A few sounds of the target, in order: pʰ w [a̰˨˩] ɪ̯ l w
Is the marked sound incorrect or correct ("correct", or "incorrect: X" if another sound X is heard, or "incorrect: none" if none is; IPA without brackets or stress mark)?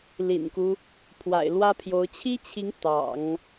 correct